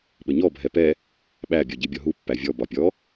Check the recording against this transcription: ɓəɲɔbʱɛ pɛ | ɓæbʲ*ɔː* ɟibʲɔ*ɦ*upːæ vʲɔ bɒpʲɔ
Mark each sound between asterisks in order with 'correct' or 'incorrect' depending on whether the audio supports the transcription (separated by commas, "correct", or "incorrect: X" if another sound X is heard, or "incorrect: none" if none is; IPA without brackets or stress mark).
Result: incorrect: ɔ, correct